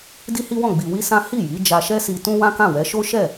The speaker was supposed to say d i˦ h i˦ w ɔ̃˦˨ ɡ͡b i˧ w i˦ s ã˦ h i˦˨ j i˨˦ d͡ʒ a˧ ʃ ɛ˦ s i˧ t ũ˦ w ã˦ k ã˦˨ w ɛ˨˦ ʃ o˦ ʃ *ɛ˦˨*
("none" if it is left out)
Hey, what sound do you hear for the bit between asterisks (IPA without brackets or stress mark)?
ɛ˦˨